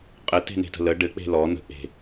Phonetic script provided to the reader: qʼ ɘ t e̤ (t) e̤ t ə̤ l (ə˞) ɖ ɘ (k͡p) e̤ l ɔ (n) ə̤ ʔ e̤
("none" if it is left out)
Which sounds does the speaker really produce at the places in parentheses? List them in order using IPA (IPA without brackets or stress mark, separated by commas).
n, ə, k͡p, n